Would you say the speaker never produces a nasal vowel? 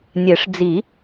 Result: yes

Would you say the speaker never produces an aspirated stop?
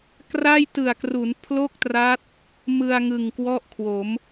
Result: no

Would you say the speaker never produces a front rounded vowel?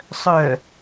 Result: no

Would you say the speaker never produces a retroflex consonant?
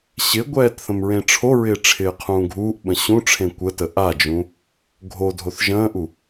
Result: no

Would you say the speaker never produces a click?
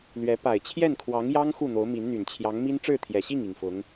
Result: yes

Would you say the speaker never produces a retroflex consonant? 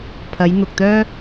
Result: yes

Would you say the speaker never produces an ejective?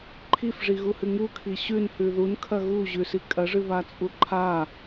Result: no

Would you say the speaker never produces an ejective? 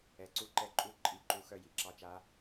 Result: no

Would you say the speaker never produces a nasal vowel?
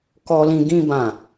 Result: no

